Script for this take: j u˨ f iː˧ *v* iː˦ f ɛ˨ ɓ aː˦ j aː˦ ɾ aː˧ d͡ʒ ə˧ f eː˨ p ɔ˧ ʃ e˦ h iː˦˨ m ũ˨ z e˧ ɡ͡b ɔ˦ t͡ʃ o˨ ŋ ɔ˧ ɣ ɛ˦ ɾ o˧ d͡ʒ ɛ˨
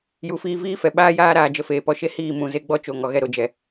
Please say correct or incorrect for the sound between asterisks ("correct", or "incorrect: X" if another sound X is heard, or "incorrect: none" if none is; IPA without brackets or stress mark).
correct